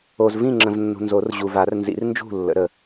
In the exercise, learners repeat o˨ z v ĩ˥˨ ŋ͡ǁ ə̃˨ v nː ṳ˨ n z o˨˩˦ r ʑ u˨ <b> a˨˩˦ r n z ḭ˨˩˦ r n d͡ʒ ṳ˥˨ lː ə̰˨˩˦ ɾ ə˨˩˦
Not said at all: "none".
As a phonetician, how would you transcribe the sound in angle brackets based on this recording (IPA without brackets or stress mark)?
v